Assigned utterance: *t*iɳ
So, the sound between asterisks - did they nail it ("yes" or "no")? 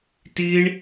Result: yes